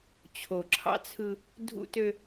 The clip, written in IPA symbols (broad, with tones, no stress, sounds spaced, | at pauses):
t͡ɕʰ o˨ ǁʰ ɑ̰˦ t͡sʰ ɯ˦ | dʱ ṵ˦ t ø˦